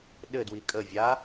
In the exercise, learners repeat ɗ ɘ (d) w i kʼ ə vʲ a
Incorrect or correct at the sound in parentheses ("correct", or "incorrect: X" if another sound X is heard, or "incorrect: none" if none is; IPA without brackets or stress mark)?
correct